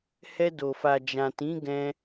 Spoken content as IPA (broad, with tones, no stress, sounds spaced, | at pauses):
h ɛ˧ d o˨ f a˨ d͡ʒ ã˨ t ĩ˨˦ ɡ ɛ̃˧